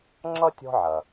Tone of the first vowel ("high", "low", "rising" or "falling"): high